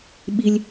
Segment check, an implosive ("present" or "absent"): present